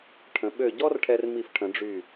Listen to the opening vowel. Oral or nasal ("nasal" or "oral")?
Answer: nasal